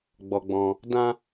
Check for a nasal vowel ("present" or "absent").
present